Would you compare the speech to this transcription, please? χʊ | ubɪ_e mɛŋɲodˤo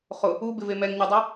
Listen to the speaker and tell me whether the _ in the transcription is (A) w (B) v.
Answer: B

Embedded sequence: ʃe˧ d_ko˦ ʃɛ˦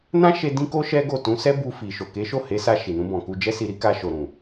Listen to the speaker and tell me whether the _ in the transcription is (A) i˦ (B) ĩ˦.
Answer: B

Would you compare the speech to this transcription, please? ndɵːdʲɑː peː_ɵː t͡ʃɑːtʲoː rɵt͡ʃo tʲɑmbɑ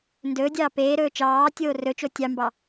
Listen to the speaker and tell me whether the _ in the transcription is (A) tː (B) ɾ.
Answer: B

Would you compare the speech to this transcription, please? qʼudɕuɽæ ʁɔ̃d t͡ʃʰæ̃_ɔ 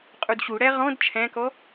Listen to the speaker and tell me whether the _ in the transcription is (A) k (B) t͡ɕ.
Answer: A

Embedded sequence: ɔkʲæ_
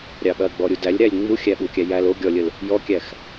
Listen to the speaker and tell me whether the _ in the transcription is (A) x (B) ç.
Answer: A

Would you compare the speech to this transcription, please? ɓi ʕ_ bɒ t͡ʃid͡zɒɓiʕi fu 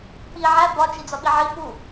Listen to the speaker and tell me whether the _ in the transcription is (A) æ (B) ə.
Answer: A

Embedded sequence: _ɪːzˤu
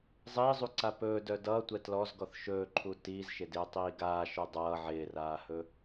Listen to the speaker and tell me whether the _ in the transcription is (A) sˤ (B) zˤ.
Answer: B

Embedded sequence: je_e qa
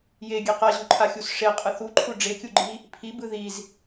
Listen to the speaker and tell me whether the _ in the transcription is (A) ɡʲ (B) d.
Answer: A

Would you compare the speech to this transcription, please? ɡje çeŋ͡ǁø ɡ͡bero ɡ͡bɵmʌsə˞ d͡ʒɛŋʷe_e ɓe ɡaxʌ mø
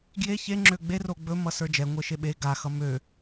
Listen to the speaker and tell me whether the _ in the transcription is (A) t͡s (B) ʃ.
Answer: B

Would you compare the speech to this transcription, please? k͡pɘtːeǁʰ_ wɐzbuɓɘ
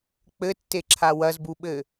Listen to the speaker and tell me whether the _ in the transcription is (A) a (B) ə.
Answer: A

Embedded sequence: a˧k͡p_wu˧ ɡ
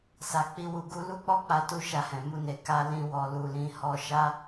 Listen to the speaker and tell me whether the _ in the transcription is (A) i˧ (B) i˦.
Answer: B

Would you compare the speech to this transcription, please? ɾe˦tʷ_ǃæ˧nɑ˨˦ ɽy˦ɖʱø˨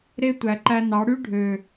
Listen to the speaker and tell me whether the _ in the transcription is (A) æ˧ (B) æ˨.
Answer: B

